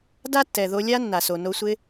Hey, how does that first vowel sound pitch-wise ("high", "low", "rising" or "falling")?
high